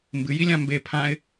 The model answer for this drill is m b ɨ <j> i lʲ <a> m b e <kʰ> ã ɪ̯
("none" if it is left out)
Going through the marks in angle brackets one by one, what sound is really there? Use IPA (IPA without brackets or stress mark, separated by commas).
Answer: j, ã, pʰ